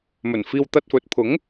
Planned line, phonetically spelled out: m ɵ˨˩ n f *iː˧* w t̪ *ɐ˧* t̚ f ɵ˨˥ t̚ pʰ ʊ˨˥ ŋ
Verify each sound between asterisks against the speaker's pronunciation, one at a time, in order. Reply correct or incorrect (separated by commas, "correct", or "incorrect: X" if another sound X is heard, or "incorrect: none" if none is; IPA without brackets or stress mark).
correct, correct